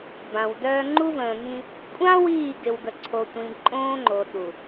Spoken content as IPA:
b ã˨ w d œː˦ ŋ͡ǃ u˦ v ə̃ː˨ ŋ ĩ˦ | kʷʼ ã˦ w iː˦˨ ɡ ɪ˨ w ɡ ə˨ ǀʰ o˨ tʷ ĩ˨ ǃʼ õː˦ ŋ͡ǃ o˨ ɗ u˨

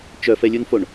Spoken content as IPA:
t͡ʃ œ f ɛ lʲ u n f o ɳ

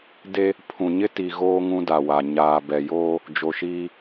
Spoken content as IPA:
d e˦ | pʰ ũ˨ ɲ ɪ˦ t i˨ ɣ oː˦ ŋ ũ˦ d a˨ w a˨ ɲ aː˨ b ɛ˨ j oː˦ | d͡ʒ o˨ ʃ iː˦

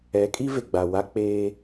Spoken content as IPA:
ɛ˨˦ kʼ i˦ v e˨ ɡ͡b a˨ w a˦ k͡p eː˦

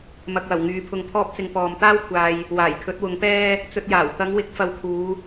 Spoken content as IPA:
m ɐ˨ k̚ w ɐ˨˩ w ŋ yː˨˥ pʰ ʊ˧ ŋ pʰ ɔː˥ p̚ t͡s ɪ˧ ŋ p ɔː˨ m t̪ aː˥ w kʷʰ aː˨ j | w aː˨˩ j kʰ ɵ˨˥ t̚ w ʊ˨˥ ŋ p ɛː˥ | t͡s ɵ˧ t̚ j aː˨˩ w t̪ ɐ˨˧ ŋ w ɪ˨˥ k̚ f ɐ˧ w kʰ uː˨˧

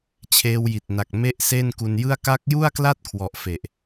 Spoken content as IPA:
t͡ɕʰ eː˧ w j i˨˩ t̚ n a˨˩ k̚ m e˥˩ ʔ s e˥˩ n k u˧ n j ɯ˥˩ a̯ k a˦˥ k̚ j u˥˩ a̯ k l a˥˩ t̚ kʰ w ɔ˨˩ ʔ f e˨˩ ʔ

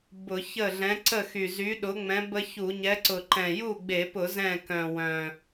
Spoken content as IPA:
b ʊ˧˩˧ ç ə˥˩ ɮ ɛ̃˨˥ ǀ ə˥˩ x y˨˩ z y˨˥ ɗ ʊ˨˥ ŋ͡m ɛ̃˨˥ b ə˦ ç u˧˩˧ ɲ ɛ˨˥ ǀ ʊ˨˩ ǃ ɛ̃˨˩ j u˥˩ ɡ͡b e˧˩˧ p ʊ˧˩˧ z ɛ̃˥˩ k œ̃˨˩ w œ̃˨˩

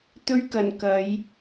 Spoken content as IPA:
t̪ ɵ˧ ɥ k ɐ˨˩ n k ɐ˨˧ j

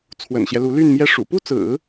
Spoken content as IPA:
t͡sʰ w ə̰˨˩ n ɕ j ɛ˦ l u˧˥ l y˥˧ n m j ɛ˥˩ ʂ ṵ˨˩ p u˥˩ t͡s ɹ̩˨˩˦

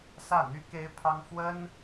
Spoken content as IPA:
s ä˥˩ n̪ y˥ k e˥ ɪ̯ pʰ ɑ˥ ŋ f w ə˥ n

